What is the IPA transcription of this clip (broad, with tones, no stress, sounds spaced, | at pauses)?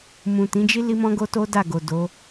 m ũ˨ t ĩ˨˦ d͡ʒ i˦ l i˦ m ɔ̃˦ ɡ o˦ t o˦ d a˦˨ ɡ o˨ d o˨˦